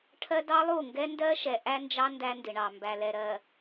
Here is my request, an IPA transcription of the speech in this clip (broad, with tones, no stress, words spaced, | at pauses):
ʈʰɜ˦ dɑ˦lˠu˦˨ŋɡɛ˦ ndɜ˦ʃɛ˨ ʔæ˦nd͡ʒɑ˦ ndæ˦ndɪ˨ɳɑ˨ mbæ˨lɛ˨ɾɜ˨